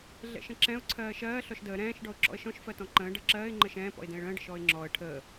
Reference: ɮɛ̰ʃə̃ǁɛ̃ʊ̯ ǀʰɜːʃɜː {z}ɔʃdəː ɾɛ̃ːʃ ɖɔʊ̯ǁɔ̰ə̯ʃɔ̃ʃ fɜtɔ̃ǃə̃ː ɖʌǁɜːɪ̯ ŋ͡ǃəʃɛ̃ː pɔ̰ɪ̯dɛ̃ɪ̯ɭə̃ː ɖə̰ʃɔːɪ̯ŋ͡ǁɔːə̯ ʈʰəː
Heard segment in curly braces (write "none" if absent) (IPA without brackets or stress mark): ɬ